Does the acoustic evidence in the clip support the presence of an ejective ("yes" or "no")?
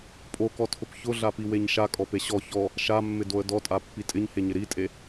yes